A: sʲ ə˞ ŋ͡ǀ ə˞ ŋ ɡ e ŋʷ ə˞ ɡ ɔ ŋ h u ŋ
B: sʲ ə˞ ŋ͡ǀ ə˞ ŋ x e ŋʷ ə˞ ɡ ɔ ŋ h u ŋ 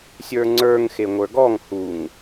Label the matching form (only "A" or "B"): B